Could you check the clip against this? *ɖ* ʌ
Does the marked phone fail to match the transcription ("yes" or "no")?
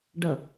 no